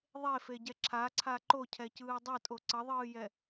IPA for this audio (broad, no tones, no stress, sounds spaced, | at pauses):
ðˤ e f e ɟ ɛ ǁʰ a ǀʰ a ǃ o cʰ ɛ c ɯː dˤ ʌ tʼ o ǀ ʌ ðˤ ɯː j ɛ